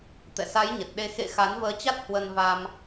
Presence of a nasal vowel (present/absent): absent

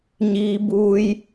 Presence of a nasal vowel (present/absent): absent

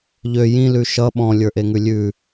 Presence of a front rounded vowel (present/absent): present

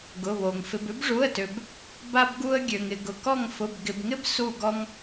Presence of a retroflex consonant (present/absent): present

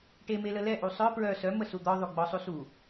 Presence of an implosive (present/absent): absent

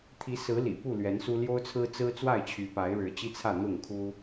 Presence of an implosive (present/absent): absent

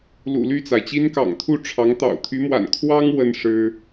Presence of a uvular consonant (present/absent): absent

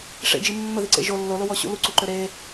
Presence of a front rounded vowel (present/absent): present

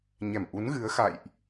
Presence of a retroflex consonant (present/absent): absent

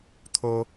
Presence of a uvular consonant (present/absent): absent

